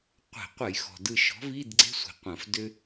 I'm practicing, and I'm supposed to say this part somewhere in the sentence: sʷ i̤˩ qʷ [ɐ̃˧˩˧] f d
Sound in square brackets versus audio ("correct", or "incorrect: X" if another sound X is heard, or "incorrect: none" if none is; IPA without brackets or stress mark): correct